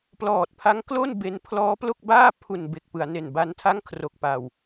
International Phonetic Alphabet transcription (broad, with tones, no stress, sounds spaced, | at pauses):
p l ɔː˨˩ t̚ pʰ a˦˥ ŋ k l o˥˩ n b e˦˥ n pʰ l ɔː˦˥ p l o˥˩ k̚ b aː˥˩ pʰ u˨˩ n b e˨˩ k̚ p ɯ˩˦ a̯ n e˨˩ n b a˦˥ n tʰ a˥˩ ŋ kʰ r o˨˩ k̚ p a˨˩ w